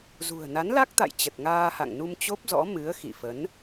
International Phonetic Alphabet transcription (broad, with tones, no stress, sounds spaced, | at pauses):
z ṳ˨˩ ə̯ n a˨˦ n l a˦˥ k̚ t̪ a̰˧˨ j t͡ɕ ə˨˩ t̚ ŋ aː˧ h a̰˧˨ ŋ n u˧ m t͡ɕ o˦˥ p̚ z ɔ̰˧˥ m ɨ˨˦ ə̯ x ḭ˧˨ f ə˨˦ n